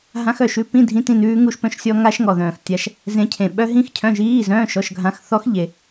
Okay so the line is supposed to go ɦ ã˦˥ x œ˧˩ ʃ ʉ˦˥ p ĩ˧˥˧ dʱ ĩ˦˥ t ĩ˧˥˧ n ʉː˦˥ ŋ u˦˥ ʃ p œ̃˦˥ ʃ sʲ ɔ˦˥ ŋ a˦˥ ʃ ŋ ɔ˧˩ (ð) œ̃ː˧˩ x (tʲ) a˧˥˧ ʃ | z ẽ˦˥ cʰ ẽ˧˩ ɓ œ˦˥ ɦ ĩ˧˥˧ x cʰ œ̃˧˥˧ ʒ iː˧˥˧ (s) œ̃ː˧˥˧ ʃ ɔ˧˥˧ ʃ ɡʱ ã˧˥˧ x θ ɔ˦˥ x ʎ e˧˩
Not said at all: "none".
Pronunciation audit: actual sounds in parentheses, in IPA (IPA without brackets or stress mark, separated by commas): ð, tʲ, z